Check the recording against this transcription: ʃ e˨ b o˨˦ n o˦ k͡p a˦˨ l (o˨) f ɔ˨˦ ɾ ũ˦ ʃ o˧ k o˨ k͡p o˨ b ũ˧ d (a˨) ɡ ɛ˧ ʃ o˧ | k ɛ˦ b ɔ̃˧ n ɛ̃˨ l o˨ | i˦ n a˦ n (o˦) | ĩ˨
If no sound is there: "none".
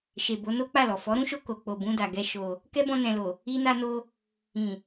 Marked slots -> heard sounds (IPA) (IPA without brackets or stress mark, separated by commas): ɔ˨, a˨, o˦